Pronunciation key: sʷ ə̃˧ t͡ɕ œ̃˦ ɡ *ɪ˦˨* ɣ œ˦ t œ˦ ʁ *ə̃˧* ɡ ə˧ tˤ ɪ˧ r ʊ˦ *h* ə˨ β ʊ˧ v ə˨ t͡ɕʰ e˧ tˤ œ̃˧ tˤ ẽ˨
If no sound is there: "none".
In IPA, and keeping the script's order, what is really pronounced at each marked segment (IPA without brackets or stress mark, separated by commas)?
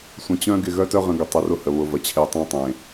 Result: ɪ˦˨, ə̃˧, h